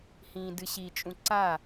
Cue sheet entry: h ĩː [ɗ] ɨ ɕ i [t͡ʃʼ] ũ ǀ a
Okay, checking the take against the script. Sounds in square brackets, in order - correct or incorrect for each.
incorrect, correct

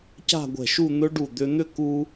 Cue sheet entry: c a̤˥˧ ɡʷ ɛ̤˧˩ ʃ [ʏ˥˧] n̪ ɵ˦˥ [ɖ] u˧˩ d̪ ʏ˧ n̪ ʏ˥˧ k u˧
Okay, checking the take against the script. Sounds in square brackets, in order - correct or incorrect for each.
incorrect, correct

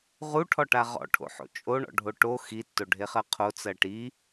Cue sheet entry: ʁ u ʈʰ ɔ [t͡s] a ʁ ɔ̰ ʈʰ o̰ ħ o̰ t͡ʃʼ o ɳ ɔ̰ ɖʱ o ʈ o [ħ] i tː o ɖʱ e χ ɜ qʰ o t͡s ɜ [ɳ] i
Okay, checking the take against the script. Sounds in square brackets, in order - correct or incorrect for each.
incorrect, incorrect, incorrect

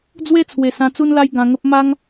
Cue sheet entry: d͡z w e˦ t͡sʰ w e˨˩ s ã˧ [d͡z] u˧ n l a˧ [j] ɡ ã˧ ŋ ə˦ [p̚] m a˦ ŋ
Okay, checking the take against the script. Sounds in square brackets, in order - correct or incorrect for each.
incorrect, correct, correct

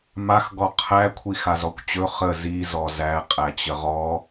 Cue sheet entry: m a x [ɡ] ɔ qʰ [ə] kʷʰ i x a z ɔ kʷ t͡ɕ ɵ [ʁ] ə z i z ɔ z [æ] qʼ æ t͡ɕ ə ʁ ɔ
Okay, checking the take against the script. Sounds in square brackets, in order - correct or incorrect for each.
correct, incorrect, incorrect, correct

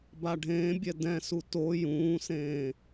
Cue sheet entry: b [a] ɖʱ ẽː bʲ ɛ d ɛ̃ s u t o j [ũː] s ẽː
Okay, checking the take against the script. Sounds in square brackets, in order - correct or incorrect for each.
correct, correct

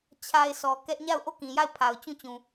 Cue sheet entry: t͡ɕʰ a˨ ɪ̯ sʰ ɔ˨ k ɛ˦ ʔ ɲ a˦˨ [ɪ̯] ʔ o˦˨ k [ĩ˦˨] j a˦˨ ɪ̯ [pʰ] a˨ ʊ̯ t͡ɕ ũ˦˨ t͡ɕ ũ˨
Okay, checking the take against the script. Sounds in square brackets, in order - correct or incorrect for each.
incorrect, incorrect, correct

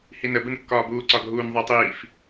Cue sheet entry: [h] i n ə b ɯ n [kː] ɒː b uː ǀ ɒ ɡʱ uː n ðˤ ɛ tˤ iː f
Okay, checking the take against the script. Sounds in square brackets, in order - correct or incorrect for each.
correct, correct

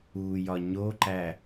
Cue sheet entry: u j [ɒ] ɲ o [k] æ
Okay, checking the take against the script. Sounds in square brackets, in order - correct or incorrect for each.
correct, incorrect

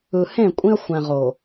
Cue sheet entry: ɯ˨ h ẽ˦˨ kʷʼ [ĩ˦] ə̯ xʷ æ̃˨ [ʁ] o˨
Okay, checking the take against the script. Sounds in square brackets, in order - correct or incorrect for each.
correct, correct

